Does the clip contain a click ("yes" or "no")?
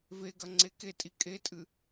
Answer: yes